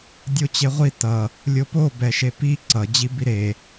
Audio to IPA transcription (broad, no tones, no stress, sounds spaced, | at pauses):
dʲ o t͡ɕ e ʁʷ i t ʌ | lʲ o p o b ɛ ʃ e p i ǀ ʌ d͡ʑ i b i ɾ e